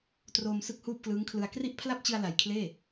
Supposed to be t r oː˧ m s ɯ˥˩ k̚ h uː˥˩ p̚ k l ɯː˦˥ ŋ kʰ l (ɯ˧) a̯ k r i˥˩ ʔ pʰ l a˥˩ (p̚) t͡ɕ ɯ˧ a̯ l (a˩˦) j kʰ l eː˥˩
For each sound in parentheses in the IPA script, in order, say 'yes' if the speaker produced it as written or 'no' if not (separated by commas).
yes, yes, no